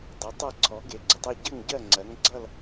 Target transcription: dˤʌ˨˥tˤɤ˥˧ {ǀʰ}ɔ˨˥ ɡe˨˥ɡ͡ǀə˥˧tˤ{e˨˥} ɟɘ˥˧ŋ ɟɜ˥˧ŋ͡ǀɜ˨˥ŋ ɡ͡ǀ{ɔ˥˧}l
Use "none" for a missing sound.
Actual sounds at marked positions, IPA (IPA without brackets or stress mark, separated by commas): ǀʰ, e˥˧, ʌ˥˧